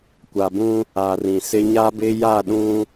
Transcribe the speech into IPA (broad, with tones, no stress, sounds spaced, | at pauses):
kʷ a˨ b ũ˦ | a˨ r ĩ˨ s ɪ˦ ɲ a˦ b ɪ˦ j a˦˨ ɗ ũ˦